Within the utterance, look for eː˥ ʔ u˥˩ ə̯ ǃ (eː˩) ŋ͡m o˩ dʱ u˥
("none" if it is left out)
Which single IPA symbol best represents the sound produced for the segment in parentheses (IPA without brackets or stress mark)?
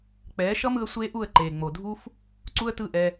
eː˩